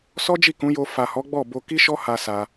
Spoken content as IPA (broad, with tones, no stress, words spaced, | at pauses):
sɔ˦d͡ʒi˦˨kũ˨˦jo˧ fa˨hɔ˨˦ ɡ͡bɔ˦˨bo˧ ki˦ʃɔ˦ha˧ sa˧